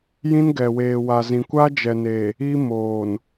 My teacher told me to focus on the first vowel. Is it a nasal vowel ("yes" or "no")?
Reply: yes